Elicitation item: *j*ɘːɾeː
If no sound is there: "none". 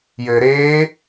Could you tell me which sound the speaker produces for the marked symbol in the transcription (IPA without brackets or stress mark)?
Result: j